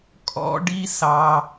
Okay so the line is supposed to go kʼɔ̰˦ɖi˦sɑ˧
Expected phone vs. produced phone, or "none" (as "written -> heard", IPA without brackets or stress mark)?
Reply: none